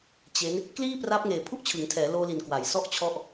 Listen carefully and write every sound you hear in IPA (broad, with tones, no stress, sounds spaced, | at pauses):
t͡ɕ e˦˥ n | k l iː˥˩ p r a˦˥ p̚ ŋ eː˨˩ pʰ u˥˩ ʔ t͡ɕʰ ɯ˩˦ ŋ tʰ ɛː˩˦ l oː˧ l i˨˩ n k w a˩˦ j s ɔ˥˩ ʔ t͡ɕʰ ɔ˥˩ ʔ